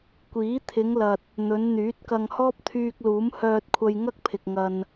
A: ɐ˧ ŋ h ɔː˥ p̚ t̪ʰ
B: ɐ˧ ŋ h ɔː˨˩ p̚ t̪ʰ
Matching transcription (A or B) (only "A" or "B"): A